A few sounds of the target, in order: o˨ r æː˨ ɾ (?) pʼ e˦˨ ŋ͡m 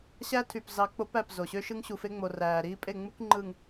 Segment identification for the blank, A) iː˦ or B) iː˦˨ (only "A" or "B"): A